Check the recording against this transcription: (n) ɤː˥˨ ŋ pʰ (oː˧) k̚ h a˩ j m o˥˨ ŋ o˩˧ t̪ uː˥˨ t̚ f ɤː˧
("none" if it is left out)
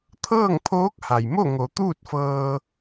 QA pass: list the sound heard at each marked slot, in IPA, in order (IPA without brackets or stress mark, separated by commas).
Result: t̪ʰ, oː˧˥